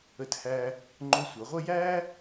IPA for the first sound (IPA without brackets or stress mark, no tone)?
ə